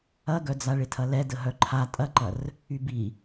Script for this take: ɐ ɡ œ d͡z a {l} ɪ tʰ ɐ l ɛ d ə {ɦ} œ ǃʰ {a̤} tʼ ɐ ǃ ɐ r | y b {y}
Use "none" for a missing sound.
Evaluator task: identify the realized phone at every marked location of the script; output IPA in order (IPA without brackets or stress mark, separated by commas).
ɭ, ɦ, a, i